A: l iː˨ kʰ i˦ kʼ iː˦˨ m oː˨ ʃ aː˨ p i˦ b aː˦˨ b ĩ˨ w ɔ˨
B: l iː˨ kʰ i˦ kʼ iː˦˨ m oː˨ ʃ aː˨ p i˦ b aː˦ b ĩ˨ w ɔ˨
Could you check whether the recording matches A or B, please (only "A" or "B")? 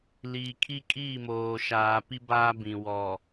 B